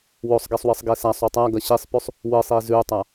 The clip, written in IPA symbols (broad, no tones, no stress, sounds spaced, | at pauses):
w o sˤ ɡ e sˤ w ɨ sˤ ɡ e s a sˤ u tˤ a ɡ ɐ ɕ i sˤ p ʉ sˤ | w ɨ sˤ i z ʉ tˤ a